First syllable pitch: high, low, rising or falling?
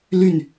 falling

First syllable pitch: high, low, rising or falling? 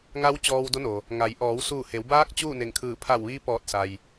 rising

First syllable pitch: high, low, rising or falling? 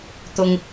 low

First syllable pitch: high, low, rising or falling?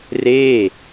falling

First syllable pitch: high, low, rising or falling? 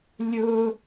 high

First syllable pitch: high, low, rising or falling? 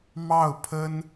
falling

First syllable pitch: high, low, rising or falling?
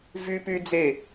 high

